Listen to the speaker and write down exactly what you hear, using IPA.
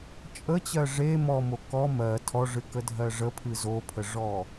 t͡ʃʼət͡ɕɜ ʐe mɔmo kɔ mɜ tʰɔʐɨkədʱɜ ʐəpʰɨ zopʰəʐɔ

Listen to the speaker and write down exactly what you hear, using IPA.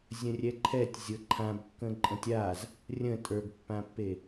zʲə̃rʲɛǃʰɛtʲ zʲɤǃʰãbkːə̃ ǃʼə̃tʲaz | rʲə̃ tʼə˞ɡpːãpːe

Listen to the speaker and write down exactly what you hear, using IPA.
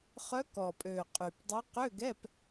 χœ˧˥kɔ˨˩ pʼø˨˩qʼy˨˩pdˤø˧˥ qø˧˥˧ɡɛ˧˥˧p

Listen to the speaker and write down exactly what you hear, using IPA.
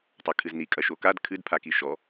tˤɐkʰɨzni kʼɐʃokad kʰɨdpʰaki ʃɔ

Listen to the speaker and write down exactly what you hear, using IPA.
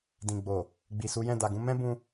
dĩ˨ɡ͡bo˨ | ɡ͡bi˨su˨˦jɛ̃˦˨ da˨ɡũ˧ mɛ̃˦bũ˧

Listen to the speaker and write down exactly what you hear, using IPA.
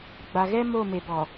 ɡ͡ba˨ɣɛ˦ mo˦˨me˨bɔ˨

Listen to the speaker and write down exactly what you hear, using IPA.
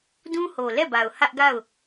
dũ˦ho˨lɛ˦˨ba˨ʊ̯ hä˦ʔɡa˦˨ʊ̯

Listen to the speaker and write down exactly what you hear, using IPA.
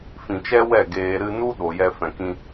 fĩ˨t͡ʃɛ˦wɛ˦˨ ɡeː˨ ɾɨ˧nu˦ ɗo˨jɛ˧ fɛ̃˨kĩ˧

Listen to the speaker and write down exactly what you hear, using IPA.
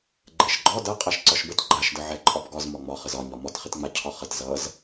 ɡ͡ǃɛʃɡ͡ǃɒ dʌ qʼaʃǀɒʃbət ɡ͡ǃaʃdə ʕɛǃʼɒbɡɒz mɒŋ͡mɒχəz ɒɲɒ mɒtχɪtŋ͡ma cʰɒχət zʌz

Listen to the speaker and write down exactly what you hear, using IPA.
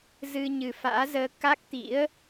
zɨ˧ɲɨ˨˩fa̰ː˧˥zəː˧ ka˦˥k̚t̪ḭ˧˥ə̯

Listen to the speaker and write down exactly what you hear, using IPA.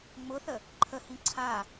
ŋ͡mʊθə | ǃʰəhĩ ǀʰa

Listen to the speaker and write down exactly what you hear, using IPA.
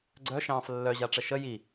ɡ͡ǀœʃɑ̃ːf lːœʑaʈ͡ʂə ʃə ji

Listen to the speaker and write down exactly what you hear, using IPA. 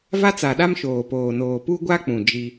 va˦t͡sa˨ɗa˦m ʃoː˨poː˨noː˨ pu˦ɡʷa˦k͡pũ˨ d͡ʒi˦

